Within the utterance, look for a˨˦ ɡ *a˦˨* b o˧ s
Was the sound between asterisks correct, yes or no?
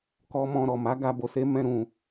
no